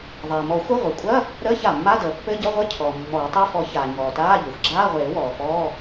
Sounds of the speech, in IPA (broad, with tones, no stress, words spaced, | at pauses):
ðˤeː˩mɔ˨˩˦xʷə˧˥˧ ʁʷəː˩kʷʼɐ˧˥˧ | ɾəː˧˥˧ça˩mːa˧˥˧ dəː˩pːɘ˧˥˧ɟʌ˧˥˧ʁʷɘ˧˥˧ cʰɔː˩mːɔː˨˩˦tˤe˧˥˧ fɔ˨˩˦ çaː˩ ɲɔː˩taː˧˥˧ ʎɘ˩xʷ ɡ͡ǁaː˧˥˧ʁʷeː˨˩˦ wɔː˩fɔː˧˥˧